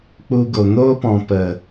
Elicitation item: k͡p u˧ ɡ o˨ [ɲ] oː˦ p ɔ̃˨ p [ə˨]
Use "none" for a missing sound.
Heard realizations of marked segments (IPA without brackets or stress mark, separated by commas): n, ə˨